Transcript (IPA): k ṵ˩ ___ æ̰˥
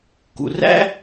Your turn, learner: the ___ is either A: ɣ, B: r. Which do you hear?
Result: B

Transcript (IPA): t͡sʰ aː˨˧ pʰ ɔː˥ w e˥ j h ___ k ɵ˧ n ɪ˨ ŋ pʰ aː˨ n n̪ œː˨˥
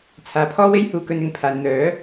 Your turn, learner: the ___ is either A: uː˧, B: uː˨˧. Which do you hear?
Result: A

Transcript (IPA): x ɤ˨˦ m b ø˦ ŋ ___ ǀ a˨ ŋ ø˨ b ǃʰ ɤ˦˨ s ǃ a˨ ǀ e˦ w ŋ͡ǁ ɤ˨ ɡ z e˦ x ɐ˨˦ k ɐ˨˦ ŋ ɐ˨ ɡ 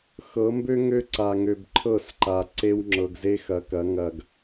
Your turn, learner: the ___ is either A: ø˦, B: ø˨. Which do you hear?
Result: A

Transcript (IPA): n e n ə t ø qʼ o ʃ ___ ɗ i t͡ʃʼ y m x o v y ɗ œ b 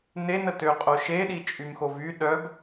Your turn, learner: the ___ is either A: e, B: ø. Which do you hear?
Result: A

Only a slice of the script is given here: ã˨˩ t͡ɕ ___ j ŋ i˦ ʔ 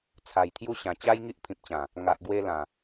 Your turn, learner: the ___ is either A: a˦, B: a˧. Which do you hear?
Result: A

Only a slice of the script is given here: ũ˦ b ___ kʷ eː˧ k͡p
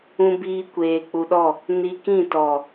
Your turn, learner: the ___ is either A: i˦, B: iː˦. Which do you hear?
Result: B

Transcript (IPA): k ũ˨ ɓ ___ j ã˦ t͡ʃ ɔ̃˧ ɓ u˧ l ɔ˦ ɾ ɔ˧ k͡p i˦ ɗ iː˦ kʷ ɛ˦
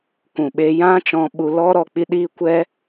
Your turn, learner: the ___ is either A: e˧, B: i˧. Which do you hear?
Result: A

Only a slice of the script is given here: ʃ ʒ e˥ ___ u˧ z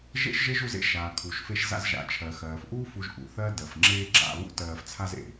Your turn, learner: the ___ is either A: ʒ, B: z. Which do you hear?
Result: A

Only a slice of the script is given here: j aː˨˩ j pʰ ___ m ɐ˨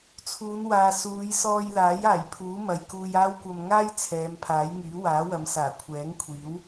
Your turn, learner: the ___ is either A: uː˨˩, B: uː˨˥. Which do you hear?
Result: B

